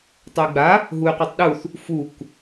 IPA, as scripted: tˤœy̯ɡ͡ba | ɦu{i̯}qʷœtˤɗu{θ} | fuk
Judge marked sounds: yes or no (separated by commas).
no, yes